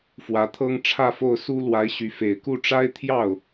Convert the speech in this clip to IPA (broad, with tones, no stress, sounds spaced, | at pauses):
f w ä˧˥ t̪ʰ ɤ˥ ŋ ʈ͡ʂʰ ä˥˧ f o˥˩ ʊ̯ s u˥ l w a˧˥ ɪ̯ ɕ y˧˥ f e˨˩ ɪ̯ k u˥˩ ʈ͡ʂ a˥ ɪ̯ t̪ʰ j ɑ˥˩ ʊ̯